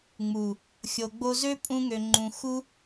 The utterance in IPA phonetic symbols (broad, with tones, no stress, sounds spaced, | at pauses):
ŋ͡m u˨ | xʲ o˨ ɡ͡b o˧ z ø˦ pʼ ũ˧ ŋ ø˨ ŋ͡ǃ ũ˨ x u˦